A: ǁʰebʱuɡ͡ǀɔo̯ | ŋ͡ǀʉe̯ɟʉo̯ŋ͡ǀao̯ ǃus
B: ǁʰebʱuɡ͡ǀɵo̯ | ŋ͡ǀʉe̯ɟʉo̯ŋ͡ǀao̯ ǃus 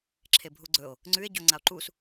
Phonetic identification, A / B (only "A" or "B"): B